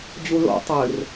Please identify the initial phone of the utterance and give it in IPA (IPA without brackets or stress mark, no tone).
d͡ʑ